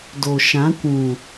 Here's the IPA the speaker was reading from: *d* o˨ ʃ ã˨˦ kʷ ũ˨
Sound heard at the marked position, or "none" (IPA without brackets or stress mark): d